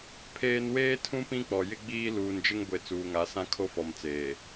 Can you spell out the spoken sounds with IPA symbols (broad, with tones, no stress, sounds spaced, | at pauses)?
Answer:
pʰ eː˦ n w eː˦ tʰ ũ˦ p ĩ˦ k͡p ɔ˨ j ɪ˦ ɡ͡b iː˦ l uː˨ n d͡ʒ ɪ˦ ŋ ɡʷ e˨ t͡s uː˨ ŋ a˨˦ s ã˦ kʰ o˦ f ɔ˨ m t͡s eː˨